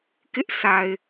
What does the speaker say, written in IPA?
k ɪ˦ ʔ s a˨ ɪ̯

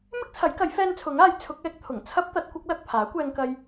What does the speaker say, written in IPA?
m ɪ˥ k̚ t͡sʰ ɐ˨˥ j k ɐ˨˥ j f ɛː˧ n t͡sʰ ʊ˨˥ ŋ aː˨˥ j t͡sʰ ʊ˨˥ k̚ ɛː˨˥ k̚ t̪ʰ ʊ˨˩ ŋ t͡sʰ ɐ˥ p̚ t̪ ɐ˨˥ t̚ kʷ ɐ˨˥ k̚ l ɐ˨ k̚ pʰ aː˨˥ kʷ ɛː˧ ŋ k ɐ˧ j

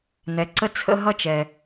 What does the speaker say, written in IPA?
n̪ ɛ˩ ǀ ə˥˧ t͡sʰ ə̰˥˧ ɦ ʌ˥˧ t͡ʃ ɛ˩

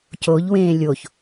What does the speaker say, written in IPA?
c o ʎ w ẽː lʲ o ç

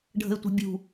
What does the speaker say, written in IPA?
ɖʱ ə̤ ɪ̯ tʷ ə̤ bʲ ṳ

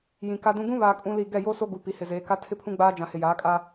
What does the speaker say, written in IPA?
j ĩ˨ k a˦ d ũ˦ ɡ ũ˦ β aː˨ kʼ ũ˦ l i˦˨ ɡ ɛ˦˨ j o˦ s o˦ ɡ u˨ p i˨ h ɪ˨ z eː˨˦ k a˦ tʰ ɪ˦ pʰ ũ˦ ɡ͡b aː˦ d͡ʒ ã˨ h ɪ˨ j aː˨˦ kʼ a˦

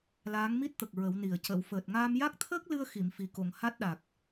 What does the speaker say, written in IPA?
l aː˧˥ ŋ m i˦˥ t̚ t̪ ə˨˩ k̚ ɹ ə˨˩˦ w n i˨˩ ə̯ c ə˨˩˨ w f əː˨˩ t̚ ŋ aː˧ m j a˦˥ k̚ t̪ʰ əː˦˥ k̚ l ɨ˧ ə̯ x i˨˩˨ m f i˨˩ k o˨˩˨ ŋ h a˦˥ t̚ ɗ a˨˩ k̚

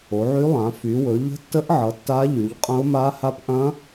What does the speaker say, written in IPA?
o˨˦ ʕ y˦˥ lˠ ã˨˦ f y˨˦ w ɵ˨˦ ʎ ə̤˦˥ tː ə˦˥ ʔ ʕ ʌ˨˦ tː a˦˥ ʎ y˨˦ ʎ qʼ ɐ̃˦˥ ʊ̯ m a˦˥ h a˦˥ p ʔ ɐ̃˦˥

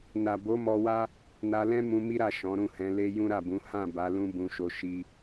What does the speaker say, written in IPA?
n a˨ b o˨˦ m ɔ˧ w a˦ | n a˧ l ɛ̃˦ m ũ˧ m i˦ ɾ a˦˨ ʃ ɔ̃˨˦ ɾ ũ˦˨ h ɛ̃˨˦ l e˦ j ũ˦ ɾ a˦˨ b ũ˨˦ h ã˦˨ b a˨˦ l ũ˦ b ũ˧ ʃ o˧ ʃ i˦

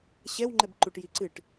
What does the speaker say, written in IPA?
ɕ ɛ w ŋ͡ǃ ɛ b ǃ u ʈ j i ǀ ɨ ʈ

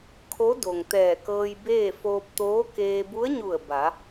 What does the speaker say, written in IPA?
kʰ o˧˥ d o˩ ŋ t̪ ɛː˧˩ k ɤː˧ j b eː˥˨ f oː˧ p̚ t̪ oː˧˥ k eː˧ b u˧˥ ə̯ ɲ u˧˩ ə̯ b a˩˧

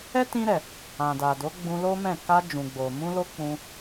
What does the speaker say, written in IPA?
ɛ˦ t ĩ˧ ɾ ɛ˨ | ã˨ d a˨ d o˨˦ ɡ͡b ũ˧ l o˦ m ɛ̃˦˨ k a˧ d͡ʒ ũ˨ ɡ͡b o˨ m ũ˧ l o˧ k͡p ũ˧

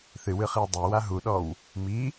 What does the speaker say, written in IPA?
θ ɨ w ɨ χ i w dˤ e w a ɦ u ɗ ɔ w | m i

